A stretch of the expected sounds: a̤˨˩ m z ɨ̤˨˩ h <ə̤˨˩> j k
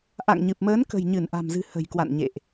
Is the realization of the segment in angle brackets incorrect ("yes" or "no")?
no